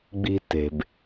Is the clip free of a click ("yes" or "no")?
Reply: yes